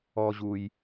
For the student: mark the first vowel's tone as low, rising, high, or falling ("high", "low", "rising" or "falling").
low